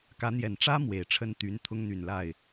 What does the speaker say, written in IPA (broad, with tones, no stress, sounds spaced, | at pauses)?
k ä˧˥ n̪ j ɛ˨˩ n ʈ͡ʂ ä˥ m w e˨˩ ɪ̯ ʈ͡ʂʰ ə˥ n t̪ y˧˥ n t̪ʰ ʊ˥ ŋ n̪ y˨˩ n l a˥˩ ɪ̯